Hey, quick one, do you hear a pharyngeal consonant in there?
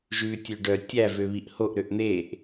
no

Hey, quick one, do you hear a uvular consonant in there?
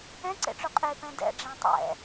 yes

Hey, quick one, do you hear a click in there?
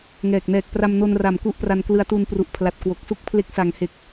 no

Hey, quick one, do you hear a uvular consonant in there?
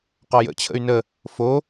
yes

